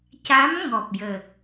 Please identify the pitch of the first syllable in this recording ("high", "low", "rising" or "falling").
rising